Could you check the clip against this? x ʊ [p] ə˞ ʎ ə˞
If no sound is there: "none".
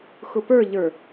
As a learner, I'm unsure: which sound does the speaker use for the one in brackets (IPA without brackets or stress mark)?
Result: p